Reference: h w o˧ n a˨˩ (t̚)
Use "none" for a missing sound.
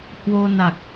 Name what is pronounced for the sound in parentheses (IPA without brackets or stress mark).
k̚